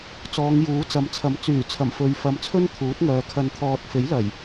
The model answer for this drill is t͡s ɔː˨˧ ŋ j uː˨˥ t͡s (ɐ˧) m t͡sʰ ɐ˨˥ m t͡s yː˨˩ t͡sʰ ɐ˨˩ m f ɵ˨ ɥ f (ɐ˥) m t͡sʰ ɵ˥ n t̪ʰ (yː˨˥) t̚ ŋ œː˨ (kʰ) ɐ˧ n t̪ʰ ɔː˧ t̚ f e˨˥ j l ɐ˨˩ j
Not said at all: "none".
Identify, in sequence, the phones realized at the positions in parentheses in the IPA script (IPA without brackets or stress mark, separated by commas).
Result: ɐ˨˧, ɐ˨˧, uː˨˥, kʰ